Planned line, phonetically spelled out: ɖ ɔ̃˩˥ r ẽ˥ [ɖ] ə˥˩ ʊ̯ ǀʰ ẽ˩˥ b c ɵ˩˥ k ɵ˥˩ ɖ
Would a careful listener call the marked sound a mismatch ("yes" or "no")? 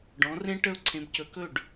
yes